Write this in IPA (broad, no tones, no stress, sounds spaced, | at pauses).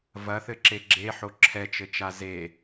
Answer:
v ɐ θ ɘ ǁ e ɡ͡ǁ e ħ o ǁʰ ɛ t͡ʃ ɘ t͡ʃ a z e